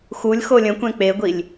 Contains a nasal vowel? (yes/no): yes